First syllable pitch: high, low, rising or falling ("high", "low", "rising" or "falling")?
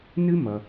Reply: high